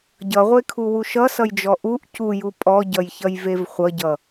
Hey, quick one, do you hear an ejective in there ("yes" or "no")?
yes